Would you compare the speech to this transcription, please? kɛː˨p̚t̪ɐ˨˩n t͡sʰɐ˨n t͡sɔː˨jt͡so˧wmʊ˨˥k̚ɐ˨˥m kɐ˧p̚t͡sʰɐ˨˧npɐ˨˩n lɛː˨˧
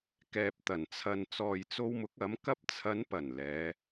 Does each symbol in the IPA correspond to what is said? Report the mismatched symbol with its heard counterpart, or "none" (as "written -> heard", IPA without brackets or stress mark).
none